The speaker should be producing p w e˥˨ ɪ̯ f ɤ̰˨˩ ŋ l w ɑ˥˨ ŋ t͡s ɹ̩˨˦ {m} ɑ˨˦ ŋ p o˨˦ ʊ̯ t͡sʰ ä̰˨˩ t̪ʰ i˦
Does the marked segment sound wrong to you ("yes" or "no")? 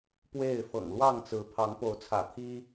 yes